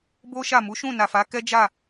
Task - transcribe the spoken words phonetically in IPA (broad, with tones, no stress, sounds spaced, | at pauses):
b o˦ ʃ a˦˨ m u˨˦ ʃ ũ˦˨ n a˨ f a˨˦ k ɛ˦ d͡ʒ a˦˨